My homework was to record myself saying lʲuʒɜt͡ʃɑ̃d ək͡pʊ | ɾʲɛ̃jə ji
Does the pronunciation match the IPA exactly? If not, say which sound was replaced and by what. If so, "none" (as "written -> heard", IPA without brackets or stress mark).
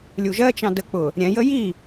none